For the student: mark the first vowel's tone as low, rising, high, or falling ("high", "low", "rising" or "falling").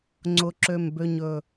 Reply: low